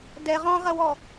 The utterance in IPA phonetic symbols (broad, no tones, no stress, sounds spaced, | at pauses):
d ɛ ʁ ɔ̃ ʁ ɐ w ɔ